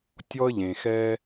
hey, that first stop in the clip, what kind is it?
plain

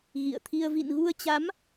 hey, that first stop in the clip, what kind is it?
aspirated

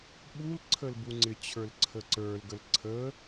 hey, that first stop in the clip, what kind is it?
implosive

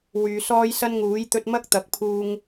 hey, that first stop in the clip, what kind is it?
plain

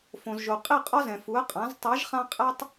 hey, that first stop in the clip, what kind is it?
ejective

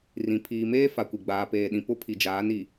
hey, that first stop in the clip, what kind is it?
aspirated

